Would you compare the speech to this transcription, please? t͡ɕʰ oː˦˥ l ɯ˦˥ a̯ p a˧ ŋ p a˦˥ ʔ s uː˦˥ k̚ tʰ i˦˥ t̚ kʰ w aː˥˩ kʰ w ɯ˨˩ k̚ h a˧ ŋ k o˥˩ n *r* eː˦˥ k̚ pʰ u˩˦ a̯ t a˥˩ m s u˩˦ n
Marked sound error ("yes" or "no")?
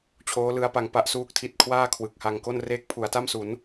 no